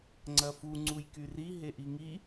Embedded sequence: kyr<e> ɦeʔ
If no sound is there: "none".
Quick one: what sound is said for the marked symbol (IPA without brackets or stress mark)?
i